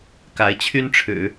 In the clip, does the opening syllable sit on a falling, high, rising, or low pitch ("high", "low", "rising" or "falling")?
rising